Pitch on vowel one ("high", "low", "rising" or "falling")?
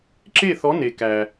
falling